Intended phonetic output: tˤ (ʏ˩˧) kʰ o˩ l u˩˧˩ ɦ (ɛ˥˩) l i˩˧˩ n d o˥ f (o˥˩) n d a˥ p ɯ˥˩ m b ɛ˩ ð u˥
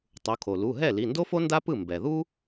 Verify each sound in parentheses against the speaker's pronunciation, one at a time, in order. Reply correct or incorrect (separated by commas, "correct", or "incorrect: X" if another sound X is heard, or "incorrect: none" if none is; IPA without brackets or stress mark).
incorrect: u˩˧, correct, incorrect: o˥